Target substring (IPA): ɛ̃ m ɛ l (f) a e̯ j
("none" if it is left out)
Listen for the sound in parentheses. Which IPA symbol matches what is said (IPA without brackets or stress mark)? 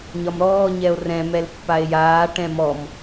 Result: pː